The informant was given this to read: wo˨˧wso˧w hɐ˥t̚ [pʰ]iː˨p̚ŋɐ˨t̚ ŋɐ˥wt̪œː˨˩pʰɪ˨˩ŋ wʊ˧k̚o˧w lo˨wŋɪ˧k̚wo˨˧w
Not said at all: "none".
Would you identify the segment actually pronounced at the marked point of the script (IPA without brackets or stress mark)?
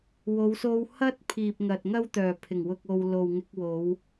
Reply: pʰ